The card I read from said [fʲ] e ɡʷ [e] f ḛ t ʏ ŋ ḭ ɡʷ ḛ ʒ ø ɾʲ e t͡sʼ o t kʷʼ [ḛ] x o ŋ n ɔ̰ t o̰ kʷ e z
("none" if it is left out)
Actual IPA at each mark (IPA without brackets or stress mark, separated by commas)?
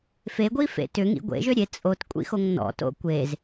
f, i, ḭ